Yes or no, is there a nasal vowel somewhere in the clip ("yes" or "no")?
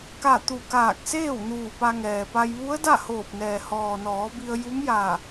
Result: no